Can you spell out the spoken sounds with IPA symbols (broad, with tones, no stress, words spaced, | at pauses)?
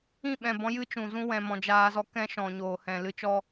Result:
ĩ˦˨ɓɛ̃˨bɔ̃˧ jɨ˦t͡ʃũ˨zũ˦ wɛ̃˨mɔ̃˨ d͡ʒaː˧zɔ˦ kɛ̃˦ʃɔ̃˨ɲoː˨hɛ̃˨ lɨ˧t͡ʃɔ˦